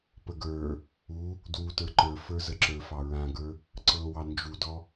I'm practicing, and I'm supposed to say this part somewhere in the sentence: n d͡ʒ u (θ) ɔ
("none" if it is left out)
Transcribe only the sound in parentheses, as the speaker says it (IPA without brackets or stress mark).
d